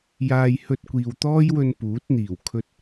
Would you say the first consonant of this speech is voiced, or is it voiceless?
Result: voiced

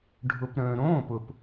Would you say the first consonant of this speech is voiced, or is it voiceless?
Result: voiced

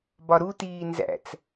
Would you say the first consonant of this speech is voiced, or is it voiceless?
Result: voiced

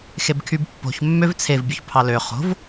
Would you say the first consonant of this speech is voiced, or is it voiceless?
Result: voiceless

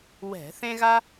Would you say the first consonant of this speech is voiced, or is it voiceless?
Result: voiced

